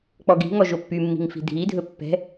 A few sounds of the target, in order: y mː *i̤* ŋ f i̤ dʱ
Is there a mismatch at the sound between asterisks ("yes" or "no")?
no